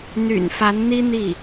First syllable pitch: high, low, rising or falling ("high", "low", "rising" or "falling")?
low